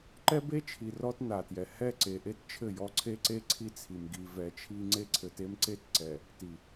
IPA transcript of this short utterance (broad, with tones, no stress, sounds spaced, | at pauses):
ǃ ɛ˦ b e˦ t͡ʃʰ i˨ r ɔ˦ t n a˨ t j ɛ˨ h ɛ˦˨ ǀ e˨ ʔ e˦ t t͡ʃʰ ɘ˦˨ j ɔ˦ ǀʰ e˦ ǀ e˦ ǀʰ i˦ t͡sʰ i˨ m ɡ i˨ v ɛ˨˦ t͡ʃʰ i˦ ŋ͡ǀ e˦ ǀʰ ɘ˨ t e˦ m ǀ e˦ t ǀ ɛ˨ | t i˨